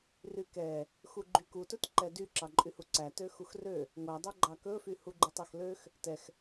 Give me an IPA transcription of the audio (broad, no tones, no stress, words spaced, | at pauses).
rykɛ | xuɡ͡ǃyku tɵtǃɛdy ǁɑǃʼyhuǀæ tøxuxrø | ŋʷæ dˤɵɡ͡ǃɑkɵfy huɡ͡ǃutˤɛxløx | tɛx